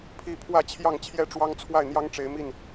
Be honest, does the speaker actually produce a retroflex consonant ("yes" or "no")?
yes